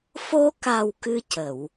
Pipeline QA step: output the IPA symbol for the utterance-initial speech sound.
f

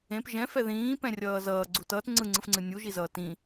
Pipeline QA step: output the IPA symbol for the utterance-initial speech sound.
ẽ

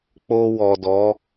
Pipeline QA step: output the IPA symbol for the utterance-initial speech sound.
k͡p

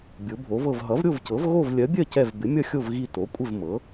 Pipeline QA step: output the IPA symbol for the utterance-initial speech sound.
bʲ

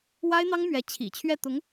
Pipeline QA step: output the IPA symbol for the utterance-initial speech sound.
w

